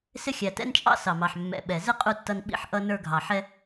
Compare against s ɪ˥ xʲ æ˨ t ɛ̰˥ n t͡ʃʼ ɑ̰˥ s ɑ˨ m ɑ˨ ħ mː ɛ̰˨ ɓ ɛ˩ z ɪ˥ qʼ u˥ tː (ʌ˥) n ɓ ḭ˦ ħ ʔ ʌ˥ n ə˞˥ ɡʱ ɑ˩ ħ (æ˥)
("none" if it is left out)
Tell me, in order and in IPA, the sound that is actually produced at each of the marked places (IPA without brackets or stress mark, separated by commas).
ʌ˦, ɛ˥